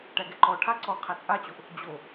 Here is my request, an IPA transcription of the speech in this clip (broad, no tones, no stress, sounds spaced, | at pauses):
ʈ æ ɡ ɛ ǃ ɔ ʈʰ a ǀ ɔ qʰ æ t͡sʼ a t͡ɕ o ʔ | d͡ʑ o